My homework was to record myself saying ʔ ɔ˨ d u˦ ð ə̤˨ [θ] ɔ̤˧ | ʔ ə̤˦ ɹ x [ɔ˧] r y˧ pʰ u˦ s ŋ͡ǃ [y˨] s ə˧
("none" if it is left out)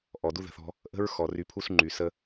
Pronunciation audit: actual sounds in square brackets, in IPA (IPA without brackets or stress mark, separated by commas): θ, ɔ˨, y˨